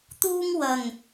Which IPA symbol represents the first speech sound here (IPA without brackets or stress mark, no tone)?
t̪